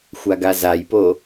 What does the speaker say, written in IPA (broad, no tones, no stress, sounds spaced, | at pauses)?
xʷ a ɡ a z a j p o